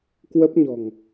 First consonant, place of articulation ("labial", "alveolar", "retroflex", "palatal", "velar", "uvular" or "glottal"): velar